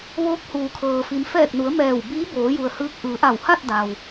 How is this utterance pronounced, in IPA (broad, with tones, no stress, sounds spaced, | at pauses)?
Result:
ʋ oː˧˥ k̚ h uː˩ kʰ ɤː˩ f i˩˧ m f ɛː˧˩ k̚ n u˩˧ ə̯ m ɛː˧˩ w b iː˧˥ b oː˩˧ j u˩ ə̯ h ɯː˧˥ k̚ ʔ ɯː˩˧ ʔ a˧˩ w h a˥˨ t̚ d a˩ w